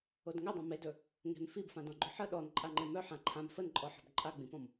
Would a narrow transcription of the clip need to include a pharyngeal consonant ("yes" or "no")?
yes